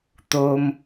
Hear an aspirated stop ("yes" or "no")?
no